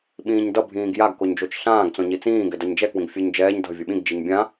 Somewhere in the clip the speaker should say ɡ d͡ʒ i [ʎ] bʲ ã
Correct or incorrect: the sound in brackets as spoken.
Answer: incorrect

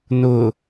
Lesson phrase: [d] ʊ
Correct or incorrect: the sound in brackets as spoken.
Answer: incorrect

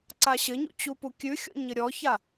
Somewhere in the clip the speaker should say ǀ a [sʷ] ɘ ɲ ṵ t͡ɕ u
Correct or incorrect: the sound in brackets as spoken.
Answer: incorrect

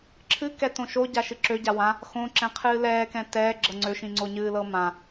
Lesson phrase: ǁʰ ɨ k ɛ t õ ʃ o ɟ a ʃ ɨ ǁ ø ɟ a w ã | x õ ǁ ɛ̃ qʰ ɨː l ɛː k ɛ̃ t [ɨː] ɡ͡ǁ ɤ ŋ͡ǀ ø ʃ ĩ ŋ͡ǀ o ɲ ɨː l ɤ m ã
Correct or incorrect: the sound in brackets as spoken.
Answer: incorrect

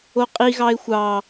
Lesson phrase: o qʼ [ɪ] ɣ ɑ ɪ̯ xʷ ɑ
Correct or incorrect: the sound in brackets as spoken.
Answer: incorrect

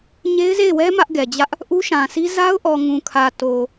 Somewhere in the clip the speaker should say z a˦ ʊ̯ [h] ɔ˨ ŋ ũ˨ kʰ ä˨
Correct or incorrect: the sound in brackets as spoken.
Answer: incorrect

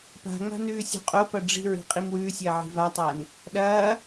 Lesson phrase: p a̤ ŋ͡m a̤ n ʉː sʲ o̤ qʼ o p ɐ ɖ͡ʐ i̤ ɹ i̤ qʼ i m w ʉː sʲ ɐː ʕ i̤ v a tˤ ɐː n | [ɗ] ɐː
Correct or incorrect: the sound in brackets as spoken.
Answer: correct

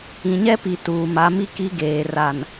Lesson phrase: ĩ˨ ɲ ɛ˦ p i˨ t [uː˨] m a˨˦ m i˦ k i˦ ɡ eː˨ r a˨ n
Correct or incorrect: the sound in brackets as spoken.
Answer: correct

